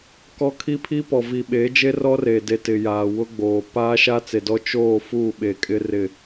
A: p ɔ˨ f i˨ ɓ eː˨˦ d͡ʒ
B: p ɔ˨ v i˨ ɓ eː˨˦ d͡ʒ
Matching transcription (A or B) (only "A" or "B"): B